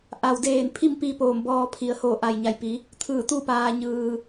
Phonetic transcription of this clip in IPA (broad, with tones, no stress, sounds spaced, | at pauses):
ʔ a˩ w d eː˧˩ n pʰ i˥˨ m p i˧ p oː˧˩ m b ɔː˧ pʰ i˩ ə̯ h oː˧˩ ʔ a˩ j ɲ a˩ j p i˩˧ | t̪ʰ ɯː˧˩ t̪ u˥˨ p aː˧ ɲ ɯː˧